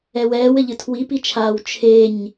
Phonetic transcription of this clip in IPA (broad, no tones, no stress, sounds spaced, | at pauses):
ɛ w ɛː w ɘ ʎ ɨ tʰ w i p i t͡ʃʰ aː w t͡ʃʰ e ɲ